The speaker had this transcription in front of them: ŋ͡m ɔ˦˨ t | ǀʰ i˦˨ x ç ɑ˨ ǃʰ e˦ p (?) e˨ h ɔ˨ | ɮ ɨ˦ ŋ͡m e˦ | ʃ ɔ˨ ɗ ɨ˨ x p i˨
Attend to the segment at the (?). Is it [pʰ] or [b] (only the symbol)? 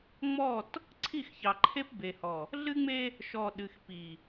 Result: b